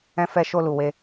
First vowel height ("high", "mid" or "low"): mid